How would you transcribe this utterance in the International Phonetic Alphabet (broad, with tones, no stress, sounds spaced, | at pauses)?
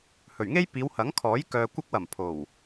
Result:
h ɵ˨˩ ɥ ŋ e˥ j p iː˨˧ w h ɐ˨˥ ŋ kʰ ɔː˨˥ j k œː˨ kʷ ɐ˧ k̚ w ɐ˨˩ m pʰ o˨˩ w